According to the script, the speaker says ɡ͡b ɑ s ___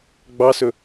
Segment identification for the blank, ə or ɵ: ɵ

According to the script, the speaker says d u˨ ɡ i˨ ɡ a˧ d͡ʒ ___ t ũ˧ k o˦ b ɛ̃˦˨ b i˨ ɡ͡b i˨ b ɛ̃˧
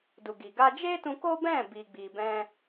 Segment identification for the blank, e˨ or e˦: e˦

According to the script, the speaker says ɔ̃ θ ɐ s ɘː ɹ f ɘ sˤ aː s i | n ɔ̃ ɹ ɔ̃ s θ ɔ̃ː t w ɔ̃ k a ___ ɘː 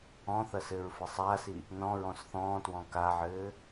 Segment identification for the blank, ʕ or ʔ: ʕ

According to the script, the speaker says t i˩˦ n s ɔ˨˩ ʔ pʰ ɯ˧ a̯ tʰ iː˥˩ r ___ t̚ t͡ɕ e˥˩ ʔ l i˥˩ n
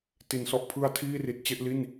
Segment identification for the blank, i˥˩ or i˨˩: i˨˩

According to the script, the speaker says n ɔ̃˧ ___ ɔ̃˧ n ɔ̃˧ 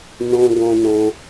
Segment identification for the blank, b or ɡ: ɡ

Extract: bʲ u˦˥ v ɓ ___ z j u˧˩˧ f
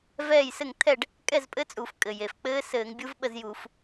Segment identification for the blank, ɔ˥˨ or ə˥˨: ə˥˨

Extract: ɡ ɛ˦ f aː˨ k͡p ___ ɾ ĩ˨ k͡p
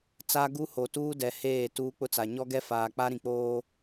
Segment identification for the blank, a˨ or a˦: a˦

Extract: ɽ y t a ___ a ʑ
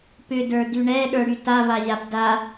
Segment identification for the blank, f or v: v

